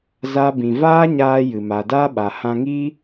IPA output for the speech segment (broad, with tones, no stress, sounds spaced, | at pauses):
z a˦ b ĩ˧ v aː˦ ɲ aː˧ j ɨ˨ m a˨ d aː˦ ɓ a˨ h ã˧ ŋ i˦